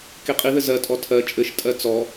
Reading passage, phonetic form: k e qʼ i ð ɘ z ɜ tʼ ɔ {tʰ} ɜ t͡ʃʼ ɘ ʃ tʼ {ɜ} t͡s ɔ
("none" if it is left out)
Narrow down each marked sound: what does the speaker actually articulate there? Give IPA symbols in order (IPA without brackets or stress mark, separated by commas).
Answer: tʰ, ɜ